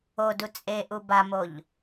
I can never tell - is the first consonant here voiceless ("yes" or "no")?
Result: no